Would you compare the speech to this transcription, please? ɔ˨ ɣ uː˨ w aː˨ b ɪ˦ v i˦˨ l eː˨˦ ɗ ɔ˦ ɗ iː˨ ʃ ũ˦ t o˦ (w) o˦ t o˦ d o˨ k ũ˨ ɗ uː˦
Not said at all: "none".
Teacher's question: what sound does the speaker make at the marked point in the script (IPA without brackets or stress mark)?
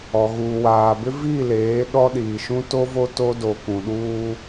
v